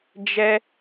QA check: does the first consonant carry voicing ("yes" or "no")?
yes